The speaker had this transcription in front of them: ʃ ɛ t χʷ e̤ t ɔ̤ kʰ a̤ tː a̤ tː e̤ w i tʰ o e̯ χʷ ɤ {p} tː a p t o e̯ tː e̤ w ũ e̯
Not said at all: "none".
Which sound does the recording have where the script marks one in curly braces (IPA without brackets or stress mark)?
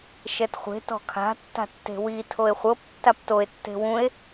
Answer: p